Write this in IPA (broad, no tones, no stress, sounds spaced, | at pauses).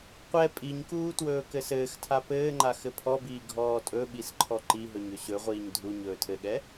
qʷ ɛ pʼ i ɲ k uː t w ɵː k ɘ s ɘː x tʰ a p ɘː ŋ͡ǃ a x ɘ pʰ ɔ b iː ɡʱ ɔː tʼ ɵ ɓ i s ǃʰ ɔ ǃ i ɦ ɵ ɲ ɵ ɕ ɵ ʁʷ iː ɲ dʱ u ɲ ɵː tʰ ɘ ɠ ɛ